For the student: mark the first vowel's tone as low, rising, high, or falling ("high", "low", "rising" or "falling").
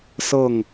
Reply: falling